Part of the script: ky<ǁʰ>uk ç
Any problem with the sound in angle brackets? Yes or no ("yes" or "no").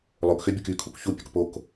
yes